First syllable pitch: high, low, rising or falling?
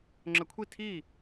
rising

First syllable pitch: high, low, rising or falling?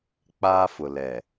high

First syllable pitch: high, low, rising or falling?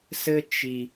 high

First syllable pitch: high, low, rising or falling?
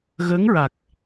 rising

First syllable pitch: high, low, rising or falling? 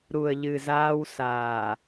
low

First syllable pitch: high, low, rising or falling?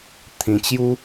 low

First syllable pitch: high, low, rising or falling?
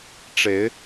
rising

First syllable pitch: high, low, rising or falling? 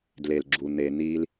low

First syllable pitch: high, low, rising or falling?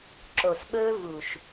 low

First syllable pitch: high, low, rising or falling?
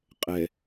low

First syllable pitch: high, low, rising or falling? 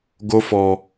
high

